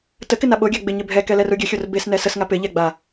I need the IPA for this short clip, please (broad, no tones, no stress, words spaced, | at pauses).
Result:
təkɪn aɓoɡʲa ɡ͡bɪ ɲɪbʱɛkɛ lɛruɡʲəxʲor bes nɛsəsŋa pɪ ʎɛɡ͡ba